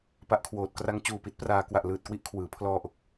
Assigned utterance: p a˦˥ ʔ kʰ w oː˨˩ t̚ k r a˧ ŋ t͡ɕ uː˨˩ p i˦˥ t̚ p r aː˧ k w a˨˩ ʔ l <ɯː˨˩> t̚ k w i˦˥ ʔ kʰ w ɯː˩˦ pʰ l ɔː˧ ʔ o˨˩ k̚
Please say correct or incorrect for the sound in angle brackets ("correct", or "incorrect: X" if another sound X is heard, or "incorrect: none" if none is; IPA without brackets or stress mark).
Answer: correct